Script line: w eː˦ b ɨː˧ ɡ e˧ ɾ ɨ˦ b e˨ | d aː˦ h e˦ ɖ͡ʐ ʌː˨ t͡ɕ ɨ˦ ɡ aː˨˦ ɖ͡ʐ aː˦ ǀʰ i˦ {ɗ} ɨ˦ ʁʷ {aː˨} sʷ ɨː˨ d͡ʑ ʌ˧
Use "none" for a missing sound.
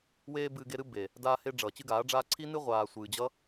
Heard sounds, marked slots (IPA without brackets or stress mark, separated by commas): n, aː˨